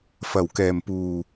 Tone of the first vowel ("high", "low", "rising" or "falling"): low